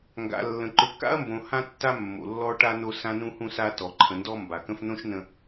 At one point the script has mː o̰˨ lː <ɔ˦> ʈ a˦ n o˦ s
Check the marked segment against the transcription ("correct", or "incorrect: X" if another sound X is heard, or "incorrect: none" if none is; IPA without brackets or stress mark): correct